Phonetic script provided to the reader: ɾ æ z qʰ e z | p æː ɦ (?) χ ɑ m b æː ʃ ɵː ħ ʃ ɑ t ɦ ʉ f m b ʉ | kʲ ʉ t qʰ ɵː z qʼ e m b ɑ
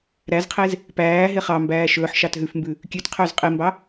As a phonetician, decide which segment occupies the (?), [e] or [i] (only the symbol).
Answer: e